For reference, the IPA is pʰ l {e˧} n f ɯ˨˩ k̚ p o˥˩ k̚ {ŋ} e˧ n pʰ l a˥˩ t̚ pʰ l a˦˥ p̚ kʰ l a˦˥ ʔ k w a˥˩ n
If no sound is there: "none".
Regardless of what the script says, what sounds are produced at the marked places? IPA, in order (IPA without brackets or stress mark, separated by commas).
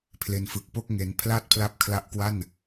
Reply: e˧, ŋ